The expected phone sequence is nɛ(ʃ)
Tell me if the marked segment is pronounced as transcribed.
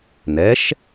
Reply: yes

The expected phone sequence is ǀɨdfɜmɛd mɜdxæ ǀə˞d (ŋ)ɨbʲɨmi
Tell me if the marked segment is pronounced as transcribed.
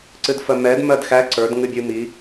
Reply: yes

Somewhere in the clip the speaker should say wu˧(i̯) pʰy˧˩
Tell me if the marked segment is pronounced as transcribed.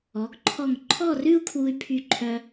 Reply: no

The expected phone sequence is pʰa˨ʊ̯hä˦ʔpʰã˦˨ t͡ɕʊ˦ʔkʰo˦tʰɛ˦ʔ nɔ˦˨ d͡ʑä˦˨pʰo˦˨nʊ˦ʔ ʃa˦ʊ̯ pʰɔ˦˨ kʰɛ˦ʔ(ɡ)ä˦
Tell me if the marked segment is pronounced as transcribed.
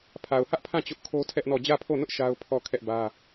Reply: no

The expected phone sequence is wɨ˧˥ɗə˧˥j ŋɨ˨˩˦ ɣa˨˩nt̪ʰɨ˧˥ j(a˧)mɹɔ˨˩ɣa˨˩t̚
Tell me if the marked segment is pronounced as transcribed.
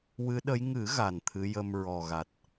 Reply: no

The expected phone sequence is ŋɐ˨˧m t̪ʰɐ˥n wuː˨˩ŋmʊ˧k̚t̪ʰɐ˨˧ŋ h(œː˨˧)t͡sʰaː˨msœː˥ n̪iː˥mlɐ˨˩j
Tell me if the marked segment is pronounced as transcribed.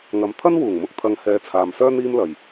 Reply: no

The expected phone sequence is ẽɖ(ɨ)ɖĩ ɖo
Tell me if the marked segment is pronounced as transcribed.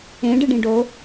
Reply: yes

